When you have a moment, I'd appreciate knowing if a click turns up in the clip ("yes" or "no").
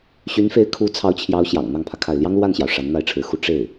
no